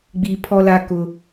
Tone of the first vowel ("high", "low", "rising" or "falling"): low